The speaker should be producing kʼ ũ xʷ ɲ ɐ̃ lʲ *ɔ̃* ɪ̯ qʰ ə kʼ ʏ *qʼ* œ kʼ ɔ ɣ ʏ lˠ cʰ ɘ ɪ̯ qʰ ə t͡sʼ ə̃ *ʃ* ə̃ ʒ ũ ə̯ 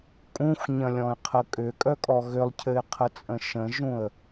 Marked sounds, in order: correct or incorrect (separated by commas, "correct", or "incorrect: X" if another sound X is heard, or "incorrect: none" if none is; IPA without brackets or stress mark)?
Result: correct, incorrect: kʼ, correct